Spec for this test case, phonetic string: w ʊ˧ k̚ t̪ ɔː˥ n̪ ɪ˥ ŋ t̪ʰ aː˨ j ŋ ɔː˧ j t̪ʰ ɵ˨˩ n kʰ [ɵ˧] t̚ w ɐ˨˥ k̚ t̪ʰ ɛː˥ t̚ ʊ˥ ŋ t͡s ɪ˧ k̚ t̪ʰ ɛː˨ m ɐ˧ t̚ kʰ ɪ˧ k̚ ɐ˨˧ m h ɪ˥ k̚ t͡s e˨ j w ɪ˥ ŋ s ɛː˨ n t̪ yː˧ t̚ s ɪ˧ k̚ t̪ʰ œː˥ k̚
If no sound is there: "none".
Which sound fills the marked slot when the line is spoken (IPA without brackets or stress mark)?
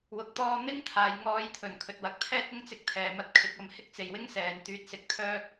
ɵ˨